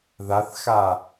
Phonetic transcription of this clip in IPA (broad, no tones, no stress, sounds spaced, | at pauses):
ð a θ x a